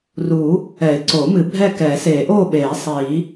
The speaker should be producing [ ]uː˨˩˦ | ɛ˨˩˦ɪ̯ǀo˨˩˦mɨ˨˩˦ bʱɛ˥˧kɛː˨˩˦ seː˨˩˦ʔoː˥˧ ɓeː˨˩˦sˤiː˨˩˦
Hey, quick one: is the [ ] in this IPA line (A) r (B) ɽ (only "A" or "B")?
A